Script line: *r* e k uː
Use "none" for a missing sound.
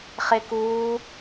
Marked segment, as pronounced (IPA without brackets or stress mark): χ